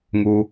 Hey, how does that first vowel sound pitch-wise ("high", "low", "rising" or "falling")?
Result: low